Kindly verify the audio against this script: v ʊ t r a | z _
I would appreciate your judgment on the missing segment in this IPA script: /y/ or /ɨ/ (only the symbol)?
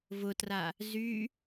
y